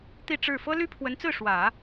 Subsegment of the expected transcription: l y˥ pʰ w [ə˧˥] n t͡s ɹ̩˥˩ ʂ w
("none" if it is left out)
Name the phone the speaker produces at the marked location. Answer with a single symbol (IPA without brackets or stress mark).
ə˧˥